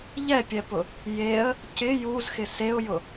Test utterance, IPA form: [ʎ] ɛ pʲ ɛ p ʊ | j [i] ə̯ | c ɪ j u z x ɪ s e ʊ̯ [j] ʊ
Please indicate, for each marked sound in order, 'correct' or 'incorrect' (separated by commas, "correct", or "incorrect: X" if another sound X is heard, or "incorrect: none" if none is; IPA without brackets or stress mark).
correct, incorrect: e, correct